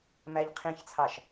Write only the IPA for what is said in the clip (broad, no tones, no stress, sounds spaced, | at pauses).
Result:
m æ ʎ qʰ ĩ ç t͡sʰ ɑ ʃ